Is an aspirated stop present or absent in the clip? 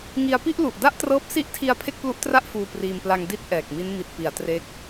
present